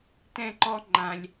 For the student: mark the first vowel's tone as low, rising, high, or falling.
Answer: falling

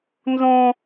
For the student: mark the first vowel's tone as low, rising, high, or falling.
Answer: high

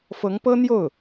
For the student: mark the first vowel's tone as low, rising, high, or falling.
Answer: rising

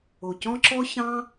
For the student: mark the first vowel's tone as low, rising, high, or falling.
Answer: low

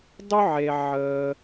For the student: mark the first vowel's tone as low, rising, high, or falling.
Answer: high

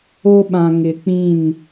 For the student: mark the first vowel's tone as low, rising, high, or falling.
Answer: high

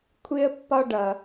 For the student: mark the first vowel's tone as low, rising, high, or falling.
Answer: high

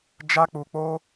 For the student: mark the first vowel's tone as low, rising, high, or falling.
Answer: high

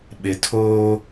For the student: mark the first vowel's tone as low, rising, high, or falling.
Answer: low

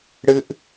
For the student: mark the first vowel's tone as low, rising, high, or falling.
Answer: high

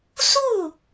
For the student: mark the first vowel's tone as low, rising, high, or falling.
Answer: falling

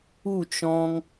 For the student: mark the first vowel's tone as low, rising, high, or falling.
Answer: falling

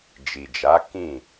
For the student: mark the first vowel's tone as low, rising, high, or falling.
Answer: low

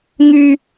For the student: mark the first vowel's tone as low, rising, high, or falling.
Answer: high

